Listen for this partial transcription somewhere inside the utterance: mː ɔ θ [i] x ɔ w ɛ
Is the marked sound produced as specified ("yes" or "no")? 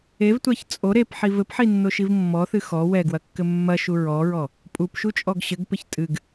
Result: no